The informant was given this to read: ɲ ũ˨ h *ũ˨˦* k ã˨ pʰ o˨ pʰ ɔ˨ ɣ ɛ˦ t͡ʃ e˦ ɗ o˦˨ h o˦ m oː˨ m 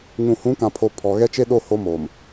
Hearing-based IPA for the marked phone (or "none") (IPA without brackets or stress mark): ũ˨˦